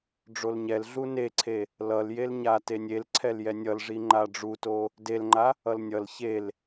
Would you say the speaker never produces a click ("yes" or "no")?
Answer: no